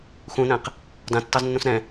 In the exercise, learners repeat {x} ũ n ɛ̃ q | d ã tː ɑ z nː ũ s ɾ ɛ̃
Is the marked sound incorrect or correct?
correct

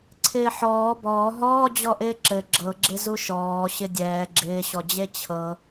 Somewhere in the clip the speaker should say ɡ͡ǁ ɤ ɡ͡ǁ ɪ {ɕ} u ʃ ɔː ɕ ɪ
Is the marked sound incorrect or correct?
incorrect: z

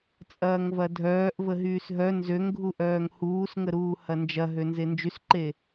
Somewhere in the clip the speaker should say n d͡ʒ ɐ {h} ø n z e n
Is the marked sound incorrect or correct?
incorrect: ɦ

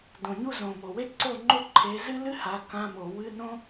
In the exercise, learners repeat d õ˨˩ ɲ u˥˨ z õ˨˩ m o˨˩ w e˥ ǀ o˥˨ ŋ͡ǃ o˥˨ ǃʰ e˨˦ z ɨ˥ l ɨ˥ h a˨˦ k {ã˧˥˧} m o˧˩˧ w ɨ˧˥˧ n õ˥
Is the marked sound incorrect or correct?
correct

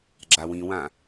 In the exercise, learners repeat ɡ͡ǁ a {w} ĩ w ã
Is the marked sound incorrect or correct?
correct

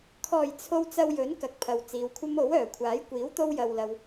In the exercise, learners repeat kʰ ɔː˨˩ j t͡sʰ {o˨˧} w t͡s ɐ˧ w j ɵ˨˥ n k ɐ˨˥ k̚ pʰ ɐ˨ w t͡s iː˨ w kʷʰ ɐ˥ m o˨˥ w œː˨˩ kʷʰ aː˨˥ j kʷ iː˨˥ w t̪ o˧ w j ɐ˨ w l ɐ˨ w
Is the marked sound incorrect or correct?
incorrect: o˨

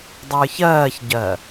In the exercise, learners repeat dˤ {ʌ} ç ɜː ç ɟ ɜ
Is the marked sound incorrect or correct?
incorrect: ə˞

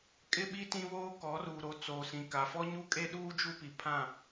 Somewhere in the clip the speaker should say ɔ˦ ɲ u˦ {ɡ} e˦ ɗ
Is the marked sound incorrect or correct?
incorrect: kʼ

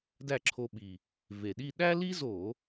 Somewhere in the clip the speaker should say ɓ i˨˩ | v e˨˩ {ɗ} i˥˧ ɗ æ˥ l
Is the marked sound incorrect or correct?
correct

